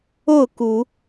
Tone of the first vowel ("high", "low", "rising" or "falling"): falling